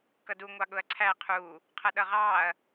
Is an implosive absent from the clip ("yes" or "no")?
no